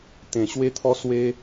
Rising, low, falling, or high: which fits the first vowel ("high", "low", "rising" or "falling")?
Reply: low